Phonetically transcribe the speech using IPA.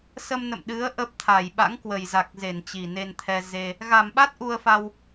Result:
s ə˧ m n ə̰˧˨ m ɗ ɨ˨˦ ə̯ ʔ ə˦˥ p̚ t̪ʰ a˧˩ j ɓ a̰˧˥ ŋ k w ə˨˩ j z a˨˩ k̚ z e˧˩ n t͡ɕ i˨˩ n e˧ n t̪ʰ ɛ˧ z e˧ | ɣ a˧˩ m ɓ a˦˥ t̚ ʔ u˧ ə̯ f a˧ w

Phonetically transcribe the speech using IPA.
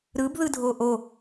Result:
ɾ ɯ b ð ɯ dʱ o ʔ o

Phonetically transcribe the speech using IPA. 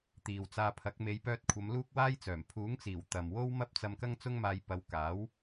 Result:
t̪ iː˨ w t͡s aː˧ pʰ ɐ˨˥ k̚ m e˨˧ j p œː˧ t̚ kʷʰ ɐ˨˧ m l uː˥ k̚ w aː˥ j t͡s œː˨˩ m pʰ uː˨˥ ŋ t͡s iː˨˩ w t̪ ɐ˨ m w o˥ w m ɐ˥ p̚ t͡s ɐ˧ m k ɐ˥ ŋ t͡s ʊ˥ ŋ m aː˧ j p ɐ˨˧ w k aː˨˥ w

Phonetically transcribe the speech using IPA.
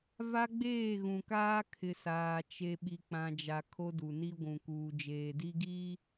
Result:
v a˦ ɡ͡b eː˦˨ ɣ ũ˨ k aː˦ kʰ ɪ˨ s aː˨ t͡ʃ e˨ ɓ i˨ k͡p ã˨ d͡ʒ a˨ kʰ o˦ d u˨ n i˦ ɡʷ ũ˨ k uː˨ d͡ʒ eː˨ d i˦ ɡ iː˦

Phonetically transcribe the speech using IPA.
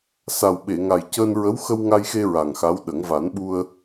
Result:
s a˨˩ w ɓ e˨˩˨ ŋ a˨˩ j c əː˧ n ɹ ə˧˥ w x ə˧ w ŋ a˧ j x e˧ ɹ a˨˩ ŋ x a˧˥ w ɗ ə˨˩˦ ŋ v a˨˩˦ n ɓ u˧ ə̯

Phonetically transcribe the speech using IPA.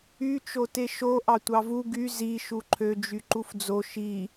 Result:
y t͡ʃ o t e ʃ o ʔ ɑ tʷ ɑ v u ɡ y z i ʃ u ǃʰ ø d͡ʒ y ǃ u f d͡z o ʃ i

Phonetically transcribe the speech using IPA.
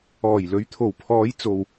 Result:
ɔː˨˩ j l ɵ˨˧ ɥ t̪ʰ o˨˩ w pʰ ɔː˨˧ j t͡s o˨ w

